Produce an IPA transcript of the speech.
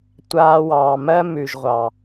tʷ aː˧ w ɑː˨ m ɜ˦ m ʉ˨ ʒ ʁʷ ɑ˨

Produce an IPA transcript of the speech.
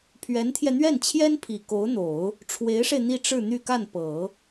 pʰ ɥ ɛ˧˥ n t̪ʰ j ɛ˧ n̪ ɥ ɛ˥˩ n t͡ɕʰ j ɛ˥ n pʰ i˨˩ k o˧˥ ʊ̯ n̪ o˨˩˦ ʊ̯ | ʈ͡ʂʰ w e˧˥ ɪ̯ ʂ e˧ ɪ̯ n̪ i˥˧ ʈ͡ʂ ɻ̩˥˧ n̪ y˥˧ k a˥˩ n p ɤ˨˩˦

